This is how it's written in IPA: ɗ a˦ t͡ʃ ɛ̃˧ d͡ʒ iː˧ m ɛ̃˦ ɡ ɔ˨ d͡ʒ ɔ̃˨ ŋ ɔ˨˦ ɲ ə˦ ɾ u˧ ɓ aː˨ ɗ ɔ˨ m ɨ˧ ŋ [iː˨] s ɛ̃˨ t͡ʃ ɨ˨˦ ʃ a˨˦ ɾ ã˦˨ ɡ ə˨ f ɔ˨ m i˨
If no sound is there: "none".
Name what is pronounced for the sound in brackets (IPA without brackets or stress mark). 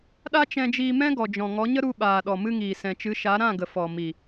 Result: iː˨